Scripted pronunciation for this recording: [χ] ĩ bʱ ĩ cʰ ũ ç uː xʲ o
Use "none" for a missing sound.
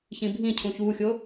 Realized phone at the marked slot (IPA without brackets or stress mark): ç